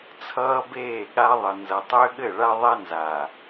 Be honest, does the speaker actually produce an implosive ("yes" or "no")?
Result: yes